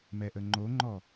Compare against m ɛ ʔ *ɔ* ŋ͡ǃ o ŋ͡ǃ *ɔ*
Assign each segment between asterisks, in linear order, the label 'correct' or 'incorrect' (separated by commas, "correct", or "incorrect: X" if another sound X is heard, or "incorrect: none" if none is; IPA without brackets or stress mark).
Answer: incorrect: ə, correct